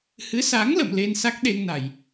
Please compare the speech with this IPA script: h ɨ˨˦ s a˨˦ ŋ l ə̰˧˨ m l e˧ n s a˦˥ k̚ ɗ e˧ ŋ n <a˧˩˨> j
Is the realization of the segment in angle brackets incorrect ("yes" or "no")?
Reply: no